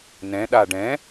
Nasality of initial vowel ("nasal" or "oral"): nasal